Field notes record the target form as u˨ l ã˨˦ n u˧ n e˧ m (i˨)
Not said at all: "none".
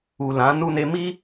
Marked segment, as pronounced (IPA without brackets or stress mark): i˦